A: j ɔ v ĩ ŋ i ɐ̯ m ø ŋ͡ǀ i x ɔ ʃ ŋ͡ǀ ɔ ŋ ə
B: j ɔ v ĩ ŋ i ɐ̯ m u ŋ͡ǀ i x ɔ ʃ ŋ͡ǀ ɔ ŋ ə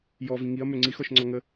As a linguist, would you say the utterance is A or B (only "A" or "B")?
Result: A